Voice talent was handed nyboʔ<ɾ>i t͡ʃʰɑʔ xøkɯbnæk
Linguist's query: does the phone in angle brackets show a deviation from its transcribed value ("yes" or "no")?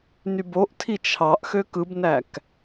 yes